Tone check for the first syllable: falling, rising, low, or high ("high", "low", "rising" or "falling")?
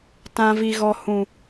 high